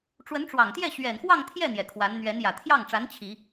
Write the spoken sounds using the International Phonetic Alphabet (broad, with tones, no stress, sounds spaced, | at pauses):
ʈ͡ʂ w ə˧˥ n ʈ͡ʂ w ɑ˨˩ ŋ t̪ j ɛ˥˩ ɕ ɥ ɛ˨˩ n x w ɑ˥˧ ŋ t̪ʰ j ɛ˥˩ n̪ j ɛ˨˩ kʰ w a˧˥ n n̪ ɥ ɛ˧˥ n j ä˨˩ t̪ʰ j ɑ˥˩ ŋ ʈ͡ʂ a˧˥ n t͡ɕʰ i˨˩˦